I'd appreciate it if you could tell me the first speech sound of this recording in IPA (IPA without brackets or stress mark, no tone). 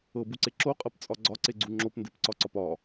ɤ